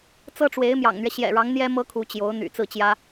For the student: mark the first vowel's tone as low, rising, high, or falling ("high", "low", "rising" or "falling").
high